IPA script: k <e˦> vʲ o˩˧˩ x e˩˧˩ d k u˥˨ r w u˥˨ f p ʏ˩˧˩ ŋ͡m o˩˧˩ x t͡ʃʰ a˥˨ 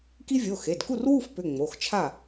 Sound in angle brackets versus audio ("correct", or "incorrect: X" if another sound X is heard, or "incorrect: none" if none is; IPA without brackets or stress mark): incorrect: i˦